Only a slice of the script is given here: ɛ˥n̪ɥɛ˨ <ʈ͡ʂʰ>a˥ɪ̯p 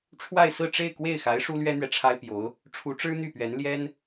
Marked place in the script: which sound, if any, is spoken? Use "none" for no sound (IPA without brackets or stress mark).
ʈ͡ʂʰ